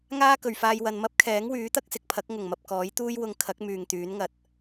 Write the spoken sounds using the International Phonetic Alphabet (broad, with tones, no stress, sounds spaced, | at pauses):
ŋ aː˥ k ɵ˨ ɥ f aː˧ j w ɐ˨ n m ɐ˥ p̚ kʰ ɛː˨˥ ŋ w yː˨˥ t̪ ɐ˥ k̚ s ɪ˨ k̚ pʰ ɐ˨˥ k̚ ŋ ʊ˨˩ ŋ m ɐ˨ p̚ k ɔː˨˥ j t̪ uː˥ j w ʊ˧ ŋ kʰ ɐ˨˥ k̚ m yː˨ ŋ t̪ yː˨˥ n ŋ ɐ˨ t̚